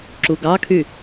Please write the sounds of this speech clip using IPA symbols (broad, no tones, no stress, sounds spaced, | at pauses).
ǁ u ɡ ɑ kʰ y